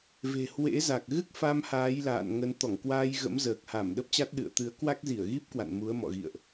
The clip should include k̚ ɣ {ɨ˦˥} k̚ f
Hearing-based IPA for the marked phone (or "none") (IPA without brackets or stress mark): ɨ˦˥